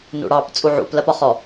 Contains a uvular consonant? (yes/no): yes